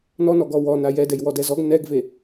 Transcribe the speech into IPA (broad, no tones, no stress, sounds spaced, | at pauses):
n ɔ n ɔ ɡ ɔ w ɔ n a j ɛ d ɛ j w ɔ d ɛ z ɔ ɡ n ɛ ɡ v e